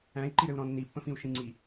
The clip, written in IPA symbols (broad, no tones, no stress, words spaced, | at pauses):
æ̃i̯ǃiɾɘu̯ɾɔ̃ nːipːə̃fĩu̯ ʃĩŋ͡ǀi